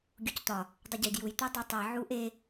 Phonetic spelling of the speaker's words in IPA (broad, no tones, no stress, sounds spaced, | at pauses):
ɡʲ u c t̪ ɒ | dˤ u ɟ i d j u j t̪ ɯ dˤ e tˤ i ʕ u ʔ e